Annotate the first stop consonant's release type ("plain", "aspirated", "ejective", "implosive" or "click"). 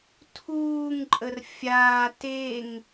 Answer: aspirated